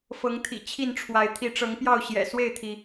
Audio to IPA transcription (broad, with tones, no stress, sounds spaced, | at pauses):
f ɤ˨˦ ŋ t̪ʰ ḭ˨˩ t͡ɕʰ i˥˨ n ʈ͡ʂʰ w a˨˦ ɪ̯ t̪ʰ i˨˦ ʈ͡ʂ ɤ˨˦ ŋ p j ɑ˥˨ ʊ̯ ɕ j ɛ̰˨˩ s w e˥˨ ɪ̯ t̪ʰ i˩